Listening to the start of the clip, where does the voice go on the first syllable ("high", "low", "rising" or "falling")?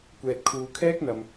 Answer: low